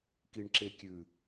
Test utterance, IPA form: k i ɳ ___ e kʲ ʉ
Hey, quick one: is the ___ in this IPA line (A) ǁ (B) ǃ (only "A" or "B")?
A